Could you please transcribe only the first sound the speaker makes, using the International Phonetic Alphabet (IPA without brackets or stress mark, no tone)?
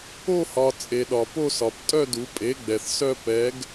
o